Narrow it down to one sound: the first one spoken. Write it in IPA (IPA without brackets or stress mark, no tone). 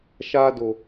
ʃ